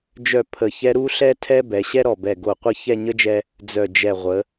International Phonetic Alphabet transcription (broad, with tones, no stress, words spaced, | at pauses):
d͡ʒœ˥˧ pʰə˧˩çɛ˥ ɾu˥ɬɛ˥ tʰɛ˥bɛ˩˧ɕɛ˥ ɾɔ˧˩bɛ˧˩ɡo˧˩qʷə˥˧ çɛ˥˧ɲə˥d͡ʒɛ˧ | d͡zœ˧˩d͡ʒɛ˧˩ ʁʷə˩˧